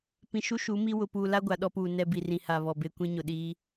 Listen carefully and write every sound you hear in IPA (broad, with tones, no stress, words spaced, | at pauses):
pĩ˨ʃu˦ ʃu˨˦mi˦ wʊ˨puː˨la˦ ɡʷa˨ɗɔ˦puː˨ nɛ˦bi˨rĩ˨ha˨ βɔ˨be˦ kʷĩ˦ɲʊ˨ɗiː˦